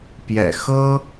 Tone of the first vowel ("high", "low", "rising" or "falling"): low